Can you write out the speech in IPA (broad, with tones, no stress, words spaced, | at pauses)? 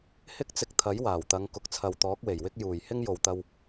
hɪ˥k̚t͡sɪ˧k̚t̪ʰɐ˨˥j waː˨˩wt̪ɐ˨˧ŋ kʊ˨k̚t͡sʰɐ˨wt̪ɔː˨˥k̚we˨˩j wɪ˥k̚ juː˨˩jhɪ˥ŋ jo˨wt̪ɐ˧w